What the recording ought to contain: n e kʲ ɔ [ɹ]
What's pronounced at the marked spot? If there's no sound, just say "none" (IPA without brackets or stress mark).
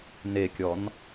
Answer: n